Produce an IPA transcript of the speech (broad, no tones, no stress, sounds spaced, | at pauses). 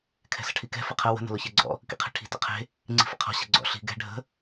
kʰ ɛ̤ s ə̤ ʈʰ i k ɛ̤ f ə qʰ ə w ə̤ n ə̤ l ʊ ç ɛ ɡ͡ǀ ɔ̰ | k ḭ qʰ e̤ ʈʰ i̤ t ə̰ qʰ e̤ | ŋ͡ǀ i̤ f ə̰ qʰ ɔ̤ ɕ ə̤ ɡ͡ǀ ɔ̰ ɬ i̤ ɡ ɛ̤ ɖʱ ə̤